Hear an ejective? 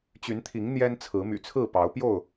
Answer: no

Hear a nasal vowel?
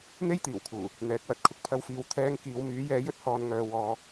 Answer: no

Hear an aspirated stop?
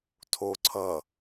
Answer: yes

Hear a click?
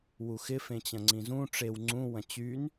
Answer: yes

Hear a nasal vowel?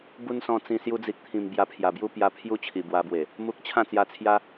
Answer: yes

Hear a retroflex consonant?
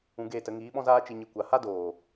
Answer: no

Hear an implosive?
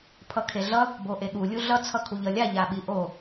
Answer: yes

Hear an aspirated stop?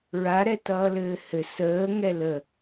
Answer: no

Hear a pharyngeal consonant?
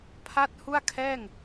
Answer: no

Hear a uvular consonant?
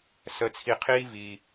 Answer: yes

